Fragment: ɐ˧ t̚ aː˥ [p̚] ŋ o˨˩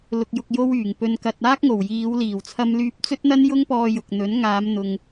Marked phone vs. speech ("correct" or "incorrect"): incorrect